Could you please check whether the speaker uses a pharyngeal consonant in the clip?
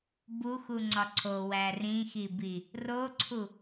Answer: no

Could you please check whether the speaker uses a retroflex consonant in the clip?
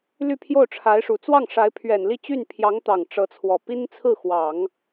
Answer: yes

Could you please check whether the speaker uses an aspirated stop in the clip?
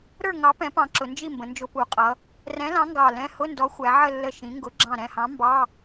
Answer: no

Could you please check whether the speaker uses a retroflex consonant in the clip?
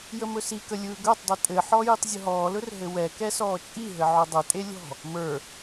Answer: no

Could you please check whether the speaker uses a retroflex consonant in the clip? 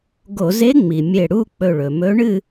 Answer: yes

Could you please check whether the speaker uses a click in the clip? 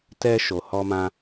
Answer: no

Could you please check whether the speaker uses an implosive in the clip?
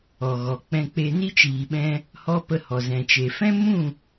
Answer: yes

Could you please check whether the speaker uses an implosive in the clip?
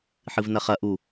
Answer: no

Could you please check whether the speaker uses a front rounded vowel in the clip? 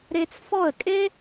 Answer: no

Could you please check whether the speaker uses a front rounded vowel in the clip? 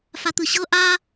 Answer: no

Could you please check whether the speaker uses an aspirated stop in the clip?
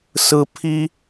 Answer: yes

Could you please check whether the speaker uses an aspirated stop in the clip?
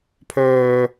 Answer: yes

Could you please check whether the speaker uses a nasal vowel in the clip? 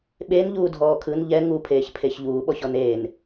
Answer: no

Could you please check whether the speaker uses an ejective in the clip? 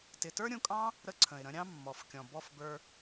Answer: yes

